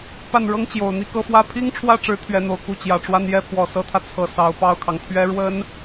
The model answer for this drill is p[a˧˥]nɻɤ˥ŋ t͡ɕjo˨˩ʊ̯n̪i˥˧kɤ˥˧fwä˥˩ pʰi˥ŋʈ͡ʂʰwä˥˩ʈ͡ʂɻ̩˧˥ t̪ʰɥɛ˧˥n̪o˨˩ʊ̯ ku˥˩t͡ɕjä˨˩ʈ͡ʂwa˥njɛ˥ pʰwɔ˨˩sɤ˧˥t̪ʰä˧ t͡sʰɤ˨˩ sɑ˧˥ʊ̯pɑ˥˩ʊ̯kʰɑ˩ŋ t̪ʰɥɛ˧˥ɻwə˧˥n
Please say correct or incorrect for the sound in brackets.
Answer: incorrect: a˥˩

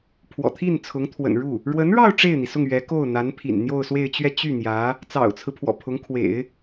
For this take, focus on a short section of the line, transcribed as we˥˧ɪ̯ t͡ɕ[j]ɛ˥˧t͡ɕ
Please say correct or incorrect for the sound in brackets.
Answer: incorrect: ɥ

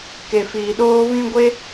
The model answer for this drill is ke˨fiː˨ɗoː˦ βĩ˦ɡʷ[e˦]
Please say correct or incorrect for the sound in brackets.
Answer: correct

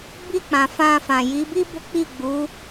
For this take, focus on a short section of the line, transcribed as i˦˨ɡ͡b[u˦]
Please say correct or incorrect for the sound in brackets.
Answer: incorrect: u˨˦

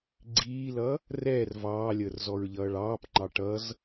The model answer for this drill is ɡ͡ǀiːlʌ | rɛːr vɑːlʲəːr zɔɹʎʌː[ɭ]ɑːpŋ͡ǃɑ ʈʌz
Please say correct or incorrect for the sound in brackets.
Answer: correct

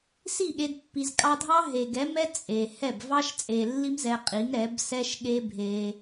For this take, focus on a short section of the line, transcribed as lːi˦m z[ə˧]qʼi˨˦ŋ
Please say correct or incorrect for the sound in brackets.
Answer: incorrect: ɛ˧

